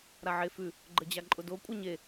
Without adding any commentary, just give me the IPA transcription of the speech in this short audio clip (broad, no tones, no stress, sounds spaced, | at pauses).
ɾ a ʕ e f ʉ | ɡ͡ǃ ə d͡ʑ a ǃʼ ʊ d o kʷʼ ɛ ɲ e